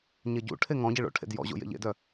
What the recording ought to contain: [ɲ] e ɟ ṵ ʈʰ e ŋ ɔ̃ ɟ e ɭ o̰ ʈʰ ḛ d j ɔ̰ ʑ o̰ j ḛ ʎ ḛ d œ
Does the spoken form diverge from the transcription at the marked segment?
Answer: no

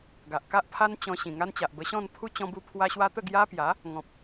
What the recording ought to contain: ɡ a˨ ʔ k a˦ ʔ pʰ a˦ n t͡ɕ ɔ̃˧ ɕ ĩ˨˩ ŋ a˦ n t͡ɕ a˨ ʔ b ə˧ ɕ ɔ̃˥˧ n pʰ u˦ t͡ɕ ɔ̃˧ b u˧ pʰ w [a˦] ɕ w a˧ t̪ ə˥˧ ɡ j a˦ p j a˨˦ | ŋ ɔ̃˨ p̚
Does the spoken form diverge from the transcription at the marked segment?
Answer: yes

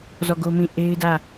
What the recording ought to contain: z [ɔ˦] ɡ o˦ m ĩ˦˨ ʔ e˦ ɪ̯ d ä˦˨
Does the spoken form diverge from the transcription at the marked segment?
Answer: yes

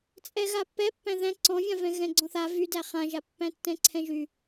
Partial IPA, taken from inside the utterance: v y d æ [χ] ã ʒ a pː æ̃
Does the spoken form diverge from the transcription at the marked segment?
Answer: no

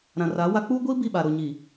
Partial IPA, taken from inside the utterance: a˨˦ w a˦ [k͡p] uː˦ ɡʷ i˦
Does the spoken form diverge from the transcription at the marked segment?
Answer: no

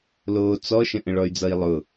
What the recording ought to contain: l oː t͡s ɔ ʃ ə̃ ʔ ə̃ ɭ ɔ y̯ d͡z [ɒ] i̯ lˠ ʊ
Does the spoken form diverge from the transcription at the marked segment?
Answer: yes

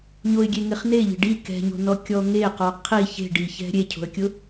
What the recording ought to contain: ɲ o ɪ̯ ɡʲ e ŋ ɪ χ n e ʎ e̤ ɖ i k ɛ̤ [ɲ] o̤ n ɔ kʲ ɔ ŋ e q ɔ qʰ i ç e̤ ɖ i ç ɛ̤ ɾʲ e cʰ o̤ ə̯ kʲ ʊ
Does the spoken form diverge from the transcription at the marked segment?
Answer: no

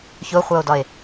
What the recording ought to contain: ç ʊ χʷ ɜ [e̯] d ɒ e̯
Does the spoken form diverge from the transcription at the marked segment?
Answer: yes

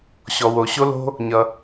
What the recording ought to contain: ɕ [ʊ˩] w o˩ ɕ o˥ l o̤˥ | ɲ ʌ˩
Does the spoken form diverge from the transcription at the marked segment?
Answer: yes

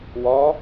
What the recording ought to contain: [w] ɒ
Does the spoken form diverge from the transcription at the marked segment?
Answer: no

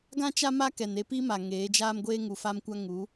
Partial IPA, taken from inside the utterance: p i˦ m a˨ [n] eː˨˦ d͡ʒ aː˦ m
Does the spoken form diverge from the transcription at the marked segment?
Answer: yes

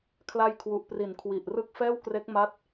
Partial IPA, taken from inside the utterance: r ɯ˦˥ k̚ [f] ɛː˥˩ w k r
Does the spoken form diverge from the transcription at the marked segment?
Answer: no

